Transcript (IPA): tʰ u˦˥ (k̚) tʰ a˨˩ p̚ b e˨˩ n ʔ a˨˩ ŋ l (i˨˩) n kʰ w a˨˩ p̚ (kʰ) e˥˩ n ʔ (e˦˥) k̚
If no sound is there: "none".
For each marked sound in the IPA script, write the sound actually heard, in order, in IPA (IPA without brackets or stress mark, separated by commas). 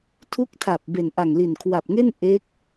k̚, i˨˩, ŋ, e˦˥